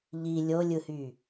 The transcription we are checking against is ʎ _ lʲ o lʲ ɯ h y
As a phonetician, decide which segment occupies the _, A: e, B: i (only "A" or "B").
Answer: B